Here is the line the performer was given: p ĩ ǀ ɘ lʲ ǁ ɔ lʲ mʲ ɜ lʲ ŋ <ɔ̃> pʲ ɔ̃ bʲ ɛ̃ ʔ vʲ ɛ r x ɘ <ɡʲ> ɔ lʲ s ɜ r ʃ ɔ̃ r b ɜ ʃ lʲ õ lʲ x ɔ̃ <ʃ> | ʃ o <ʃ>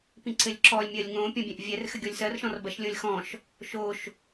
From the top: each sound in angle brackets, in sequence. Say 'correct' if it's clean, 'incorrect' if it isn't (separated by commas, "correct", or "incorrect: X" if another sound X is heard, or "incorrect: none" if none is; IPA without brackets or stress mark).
incorrect: õ, correct, correct, correct